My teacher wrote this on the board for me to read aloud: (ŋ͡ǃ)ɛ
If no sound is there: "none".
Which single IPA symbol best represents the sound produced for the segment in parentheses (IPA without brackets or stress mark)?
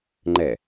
ŋ͡ǃ